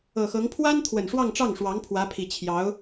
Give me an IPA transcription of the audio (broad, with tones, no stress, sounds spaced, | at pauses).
ɤ˨˩ x ɤ˧˥ ŋ pʰ w a˥ n t̪ʰ w ə˨˩ n ʂ w ɑ˥˧ ŋ ʈ͡ʂ ɑ˥˩ ŋ ʂ w ɑ˧˥ ŋ pʰ w ä˧˥ pʰ i˨˩ t͡ɕʰ j ɑ˧˥ ʊ̯